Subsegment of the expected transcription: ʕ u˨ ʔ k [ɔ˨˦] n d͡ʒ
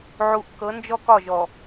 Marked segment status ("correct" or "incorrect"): incorrect